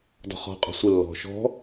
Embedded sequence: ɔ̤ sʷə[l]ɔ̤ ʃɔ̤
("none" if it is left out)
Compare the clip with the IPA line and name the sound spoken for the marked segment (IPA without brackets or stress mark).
lː